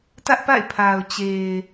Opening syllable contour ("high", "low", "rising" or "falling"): high